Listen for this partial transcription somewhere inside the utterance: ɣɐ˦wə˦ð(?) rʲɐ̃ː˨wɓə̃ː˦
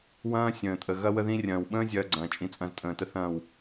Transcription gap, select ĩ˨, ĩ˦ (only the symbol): ĩ˦